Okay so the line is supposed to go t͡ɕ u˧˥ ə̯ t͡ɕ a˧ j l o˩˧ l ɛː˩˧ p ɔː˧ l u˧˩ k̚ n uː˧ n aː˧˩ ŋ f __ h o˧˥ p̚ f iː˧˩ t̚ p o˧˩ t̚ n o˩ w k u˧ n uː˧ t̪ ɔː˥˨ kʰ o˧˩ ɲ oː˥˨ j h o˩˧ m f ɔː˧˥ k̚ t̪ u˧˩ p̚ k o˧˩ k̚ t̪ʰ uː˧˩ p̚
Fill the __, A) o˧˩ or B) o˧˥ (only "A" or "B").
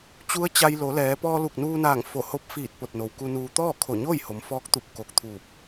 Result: A